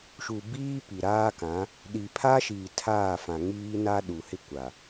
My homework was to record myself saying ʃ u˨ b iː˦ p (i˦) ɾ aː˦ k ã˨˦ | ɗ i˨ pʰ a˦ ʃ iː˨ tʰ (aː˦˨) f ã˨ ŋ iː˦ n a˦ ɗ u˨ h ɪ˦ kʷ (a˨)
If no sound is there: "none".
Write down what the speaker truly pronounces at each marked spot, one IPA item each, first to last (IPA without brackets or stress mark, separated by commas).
i˨, aː˦˨, a˨